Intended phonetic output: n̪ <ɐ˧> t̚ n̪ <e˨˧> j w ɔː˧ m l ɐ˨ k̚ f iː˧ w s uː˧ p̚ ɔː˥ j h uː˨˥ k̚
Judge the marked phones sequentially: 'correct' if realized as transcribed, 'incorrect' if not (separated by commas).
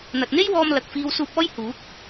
incorrect, incorrect